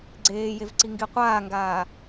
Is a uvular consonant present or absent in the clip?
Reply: present